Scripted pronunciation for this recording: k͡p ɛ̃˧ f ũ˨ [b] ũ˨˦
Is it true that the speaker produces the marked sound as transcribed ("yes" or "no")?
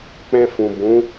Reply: yes